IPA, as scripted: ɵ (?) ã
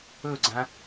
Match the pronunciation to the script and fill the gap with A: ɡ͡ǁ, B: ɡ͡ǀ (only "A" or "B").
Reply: B